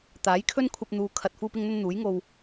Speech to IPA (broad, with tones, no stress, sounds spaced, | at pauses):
t̪ aː˨˥ j kʰ ɵ˥ n kʷʰ ɐ˧ p̚ n̪ uː˨ kʰ ɐ˨ t̚ f uː˥ p ɪ˥ ŋ n̪ ɵ˥ n n̪ uː˨˥ j ŋ o˧ w